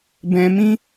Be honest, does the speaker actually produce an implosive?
no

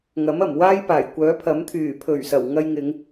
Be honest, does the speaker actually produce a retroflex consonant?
no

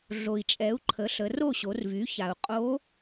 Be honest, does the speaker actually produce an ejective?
yes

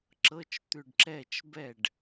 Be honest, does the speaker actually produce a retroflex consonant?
yes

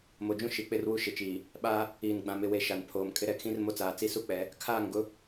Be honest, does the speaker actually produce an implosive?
yes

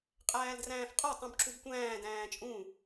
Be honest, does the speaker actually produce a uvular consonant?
yes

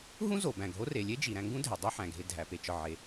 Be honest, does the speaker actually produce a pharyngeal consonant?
yes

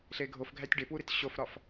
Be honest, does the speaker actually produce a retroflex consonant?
yes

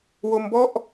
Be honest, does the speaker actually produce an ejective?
no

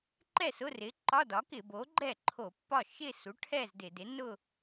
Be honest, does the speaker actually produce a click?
yes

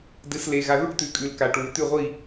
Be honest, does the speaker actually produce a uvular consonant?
yes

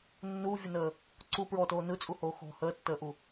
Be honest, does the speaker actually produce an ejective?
yes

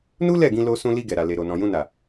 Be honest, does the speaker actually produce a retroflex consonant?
no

